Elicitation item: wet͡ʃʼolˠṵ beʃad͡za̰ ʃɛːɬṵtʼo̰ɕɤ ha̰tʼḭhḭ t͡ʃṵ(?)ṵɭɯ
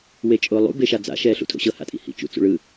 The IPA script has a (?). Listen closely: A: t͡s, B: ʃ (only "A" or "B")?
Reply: A